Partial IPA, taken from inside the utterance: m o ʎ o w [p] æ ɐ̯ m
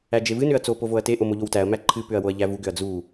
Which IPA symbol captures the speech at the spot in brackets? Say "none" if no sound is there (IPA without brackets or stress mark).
t